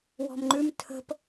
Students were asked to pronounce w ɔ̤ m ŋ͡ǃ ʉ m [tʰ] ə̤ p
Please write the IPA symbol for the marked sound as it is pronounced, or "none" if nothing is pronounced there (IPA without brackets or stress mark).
tʰ